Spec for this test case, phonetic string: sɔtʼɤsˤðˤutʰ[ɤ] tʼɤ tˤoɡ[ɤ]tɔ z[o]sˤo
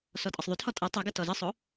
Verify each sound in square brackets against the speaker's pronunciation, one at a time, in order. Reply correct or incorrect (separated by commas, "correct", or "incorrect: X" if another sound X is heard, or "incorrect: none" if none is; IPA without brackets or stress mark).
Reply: incorrect: ɔ, correct, incorrect: ɤ